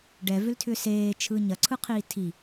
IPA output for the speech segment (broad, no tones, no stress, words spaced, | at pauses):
ɖɛvʏltʰʏ seːt͡ʃʰɯ ɲɐǀʰɯqʰiː tʰi